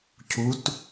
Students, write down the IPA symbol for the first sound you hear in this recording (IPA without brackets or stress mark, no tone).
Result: cʰ